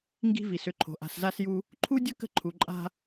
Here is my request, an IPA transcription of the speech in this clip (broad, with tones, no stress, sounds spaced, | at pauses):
ŋ ɡ i̤˦ v i˨ s ʏ˦˨ ǃʰ o̤˨ ʔ a̤˨ s z a˦ s j u˦ | ǃʰ u˦ dʲ ə˦ k ə̤˦ ǃʰ u˨ ǃʼ a̤˦